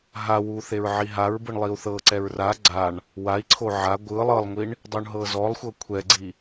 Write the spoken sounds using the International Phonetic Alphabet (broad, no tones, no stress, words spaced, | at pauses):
ɦawu θeɹʕiɦaɹbɯɳ lˠiu̯θɤǀɛɹ ra ɡ͡ǀaɳ | wai̯ǀʰo ʕa ɡʷɯ lˠɤlˠŋʷiɳ | dˤuɳɦɤzɔlˠxʷɤ kʷʰɛɡ͡ǀi